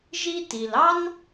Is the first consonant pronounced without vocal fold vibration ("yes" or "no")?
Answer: no